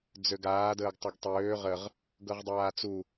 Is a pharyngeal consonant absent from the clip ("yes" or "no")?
yes